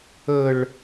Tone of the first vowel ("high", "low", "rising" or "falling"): high